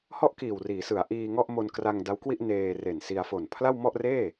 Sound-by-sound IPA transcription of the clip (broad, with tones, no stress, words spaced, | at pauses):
hɔ˥˩ʔ kiː˨˩wriː˩˦sɯ˩˦a̯ ʔiː˧ŋɔ˥˩ʔ mo˧nkra˧ŋda˦˥wkwi˥˩ʔ neː˧re˨˩nsi˧a̯ fo˨˩npʰla˥˩wmɔ˥˩ʔreː˥˩